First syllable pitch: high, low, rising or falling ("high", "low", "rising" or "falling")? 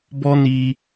high